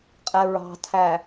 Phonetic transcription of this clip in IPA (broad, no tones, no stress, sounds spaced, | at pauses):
qʼ ɛ ɹ ɑ̤ tʰ æ